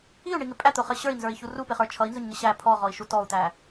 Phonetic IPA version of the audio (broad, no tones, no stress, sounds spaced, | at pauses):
i u̯ ɳ i ŋ ɪ pʼ æ t̪ ʊ χ ə ɕ ə˞ i̯ n z ə˞ i̯ ç u r u p ɪ χ ə˞ t͡ʃʰ ʌ i̯ n z ʊ ɲ ŋ ɪ ɕ æ pʰ ɔ ʁ ɔ i̯ ʃ u t ɔ u̯ t̪ æ